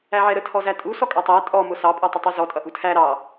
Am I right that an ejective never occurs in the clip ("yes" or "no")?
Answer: no